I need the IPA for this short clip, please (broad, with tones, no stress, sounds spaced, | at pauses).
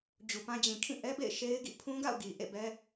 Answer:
d͡ʑ u˨ p ã˦ d͡ʑ ĩ˨ kʰ ĩ˦˨ ʔ ɛ˦ b ḛ˦˨ ɪ̯ ʃ e˦ ɪ̯ ɡ ḭ˦˨ pʰ ũ˦ ɡ a̰˦˨ ʊ̯ ɡ i˨ ʔ ḛ˦˨ b ɛ˦